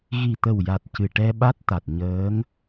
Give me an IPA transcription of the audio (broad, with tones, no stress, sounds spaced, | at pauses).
ɣ i˨˩ t̪ ə˨˩ w j a˨˩ t̚ c ɨ˨˩ ʈ ɛ˧ ɓ a˦˥ t̚ t̪ a˨˩ t̚ ɲ əː˧˥ ŋ